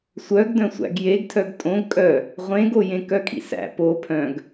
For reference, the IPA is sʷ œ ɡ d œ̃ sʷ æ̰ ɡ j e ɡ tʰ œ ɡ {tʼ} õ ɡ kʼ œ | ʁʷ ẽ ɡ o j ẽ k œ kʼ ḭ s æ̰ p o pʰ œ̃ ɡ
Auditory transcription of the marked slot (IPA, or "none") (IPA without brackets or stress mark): tʼ